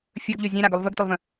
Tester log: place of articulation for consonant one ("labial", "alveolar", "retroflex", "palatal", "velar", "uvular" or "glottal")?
labial